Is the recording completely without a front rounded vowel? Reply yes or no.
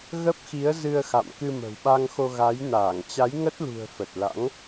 yes